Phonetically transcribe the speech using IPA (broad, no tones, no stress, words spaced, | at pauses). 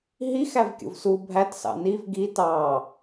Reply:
ɦix ævkʲo̰vsu bʱætsɑ̰ niv ɡi tɑ